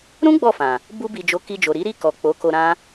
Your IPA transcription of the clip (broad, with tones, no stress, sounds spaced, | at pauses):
ɾ ũ˦ ɡ͡b ɔ˦˨ f ã˨ | b u˧ b i˨ d͡ʒ o˨˦ k i˧ d͡ʒ o˨ ɾ i˨˦ ɾ i˦˨ k ɔ˨ k͡p o˨˦ k o˧ ɾ ã˦